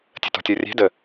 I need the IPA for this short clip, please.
tʲ ə̤ t ɔ̤ tʲ ɔ rʲ ɛ̤ d ə

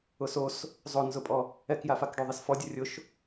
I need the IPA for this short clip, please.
ʊ s o s | zˤ o n z ʊ pʼ ɔ | ɛ k j a f a k ɖ o ðˤ e s f ɔ dʲ ʊ rʲ ʊ ʃ

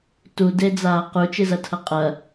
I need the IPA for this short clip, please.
t u d e d͡z aː q u t͡ʃ ɨ z ɐ tʰ ɐ qʼ ɐ

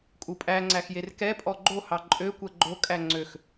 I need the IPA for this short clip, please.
kʼ u pʼ æ ŋ͡ǀ æ x j e r k ɛ pʼ ɔ ɡ͡ǃ o h ɑ ǃʼ ø kʷ ɛ ɡ͡ǃ o kʼ æ ŋ͡ǀ ø x

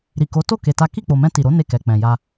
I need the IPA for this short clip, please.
ɾ i˨ k o˨˦ t o˦˨ k e˧ t a˦ k i˦˨ k͡p o˨ m ɛ̃˧ t i˨ ɾ o˨˦ n e˦˨ k ɛ˨ k͡p ɛ̃˨ j a˧

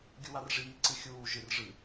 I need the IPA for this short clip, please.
ɡʲ u w a r ʐ iː ǀ ɨ xʲ uː ʒ ɨ r ʐ ɨ

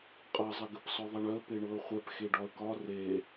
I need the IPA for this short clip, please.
qʼ ɤ zˤ ɘ ɡ ɘ p s ɔ ðˤ ɛ ɳ œ ə̯ p e ɳ ɤ ə̯ χʷ ɛ p x e ɖ ɒ ə̯ k ɒ r e

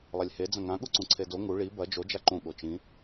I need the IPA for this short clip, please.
lˠ ɐ lʲ h e d͡z ɐ̃ ŋ ã ɠ u ǀ ũ ǀʰ e d o ŋ u ɭ i b ɐ d͡ʒ o d͡ʒ a ǃ ũ ɠ o t͡ʃ ĩ

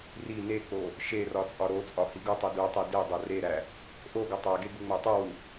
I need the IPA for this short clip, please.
r i n e k͡p o | ʃ e r ɒ t͡sʼ ɒ ɾ o t͡sʼ ɒ h i ɡ u tˤ u d u tˤ e d e dˤ o r e ɾ æ | ʔ o ɡ o tˤ æ ɡ e ɡ u ŋ͡m æ tˤ u w u

